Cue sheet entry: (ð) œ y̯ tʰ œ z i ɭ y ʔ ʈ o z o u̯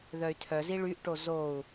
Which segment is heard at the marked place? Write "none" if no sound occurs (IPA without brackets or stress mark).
ð